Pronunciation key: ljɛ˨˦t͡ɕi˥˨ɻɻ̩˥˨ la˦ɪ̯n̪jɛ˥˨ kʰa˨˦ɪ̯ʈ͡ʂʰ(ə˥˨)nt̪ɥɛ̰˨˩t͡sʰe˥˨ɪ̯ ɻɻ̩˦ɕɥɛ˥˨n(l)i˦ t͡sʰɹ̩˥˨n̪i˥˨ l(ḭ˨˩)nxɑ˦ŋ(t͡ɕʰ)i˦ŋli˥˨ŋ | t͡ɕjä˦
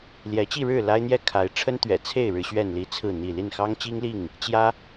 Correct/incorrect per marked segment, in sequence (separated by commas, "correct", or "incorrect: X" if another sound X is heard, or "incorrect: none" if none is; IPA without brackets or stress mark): incorrect: ə˦, correct, incorrect: i˥˨, incorrect: t͡ɕ